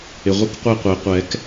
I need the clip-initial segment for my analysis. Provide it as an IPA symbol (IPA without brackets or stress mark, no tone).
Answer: ɪ